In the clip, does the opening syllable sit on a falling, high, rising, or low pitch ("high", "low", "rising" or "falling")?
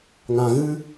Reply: low